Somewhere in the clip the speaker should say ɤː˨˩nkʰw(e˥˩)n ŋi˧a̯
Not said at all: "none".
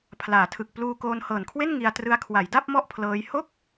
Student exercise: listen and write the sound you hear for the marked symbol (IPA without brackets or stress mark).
e˥˩